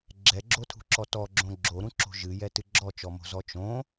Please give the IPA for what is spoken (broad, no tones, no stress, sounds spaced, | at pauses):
ɡ͡ǁ ɛ ɡ͡ǁ o tʰ ṳ ǁ ɔ t ɔ ɡ͡ǁ õ ɡ͡ǁ o ɾ ũ ǁ o̤ ʒ ɨ j ɛ t ɨ ɡ͡ǁ ɔ t͡ʃ ɔ m o̤ z ɔ t͡ʃ õ